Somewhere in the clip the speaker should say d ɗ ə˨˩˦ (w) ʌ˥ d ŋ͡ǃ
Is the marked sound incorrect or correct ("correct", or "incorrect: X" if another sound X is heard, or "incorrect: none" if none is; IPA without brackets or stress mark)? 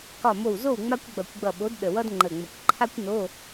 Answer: correct